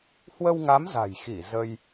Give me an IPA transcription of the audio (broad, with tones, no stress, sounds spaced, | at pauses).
h w ə˧ w ŋ a˨˦ m z a̤˨˩ j x i˧˩ z ə˧ j